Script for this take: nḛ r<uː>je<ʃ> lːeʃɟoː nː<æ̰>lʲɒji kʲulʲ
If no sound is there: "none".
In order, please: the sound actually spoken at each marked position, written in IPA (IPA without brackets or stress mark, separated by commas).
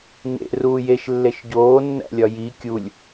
uː, ʃ, æ̰